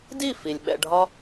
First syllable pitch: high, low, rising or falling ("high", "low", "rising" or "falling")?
falling